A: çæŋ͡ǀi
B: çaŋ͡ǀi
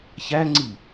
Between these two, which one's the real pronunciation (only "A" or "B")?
A